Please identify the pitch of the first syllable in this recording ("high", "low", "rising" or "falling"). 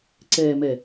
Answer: low